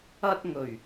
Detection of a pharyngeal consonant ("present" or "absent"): absent